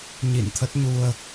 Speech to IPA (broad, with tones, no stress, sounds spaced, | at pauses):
ɲ ḭ˧˨ n t̪ʰ ə˦˥ t̚ ɲ u˧ ə̯